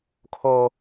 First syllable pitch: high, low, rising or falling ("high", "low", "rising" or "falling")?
high